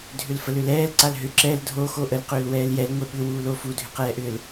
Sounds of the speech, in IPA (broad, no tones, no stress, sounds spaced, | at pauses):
dʱ ʏ l f ə l ʏ l ɛː l ǀ a l ɦ ʏ ǁ ɛ l dʱ o x o ʔ ə l q ʏː l w ɛː l j ɛ l ŋʷ e ɓ ʏ w uː l o f u dʱ ʏ q ɛː ʔ ʏː l